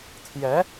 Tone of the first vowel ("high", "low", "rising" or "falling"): rising